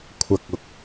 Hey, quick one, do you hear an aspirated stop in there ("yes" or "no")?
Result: yes